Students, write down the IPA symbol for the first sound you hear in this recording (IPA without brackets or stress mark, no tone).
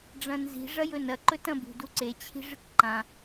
ɖ͡ʐ